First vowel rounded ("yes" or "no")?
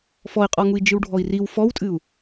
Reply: yes